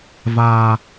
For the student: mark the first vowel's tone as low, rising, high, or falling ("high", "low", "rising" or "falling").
low